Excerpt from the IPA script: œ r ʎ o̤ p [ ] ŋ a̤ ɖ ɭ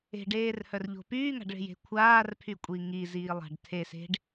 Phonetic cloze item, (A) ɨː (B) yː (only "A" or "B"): B